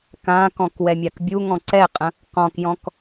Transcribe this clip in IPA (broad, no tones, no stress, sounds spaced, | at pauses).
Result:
k ã k ɔ̃ k w ɛ mʲ a k bʲ u ŋ ɔ̃ ǀ ɛ qʼ ə̃ | q ɔ̃ k j ɔ̃ k